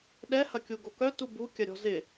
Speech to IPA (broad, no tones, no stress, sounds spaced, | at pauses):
ɗ ɛ h ɐ kʲ u ɡ o k œ t u b u kʲ ɐ ɾʲ ɔ̤ z ɪ